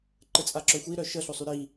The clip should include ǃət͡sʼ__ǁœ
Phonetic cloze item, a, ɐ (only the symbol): a